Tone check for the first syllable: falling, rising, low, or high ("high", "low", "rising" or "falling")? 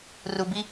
high